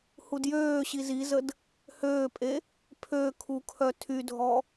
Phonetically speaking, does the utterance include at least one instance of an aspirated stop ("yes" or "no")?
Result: yes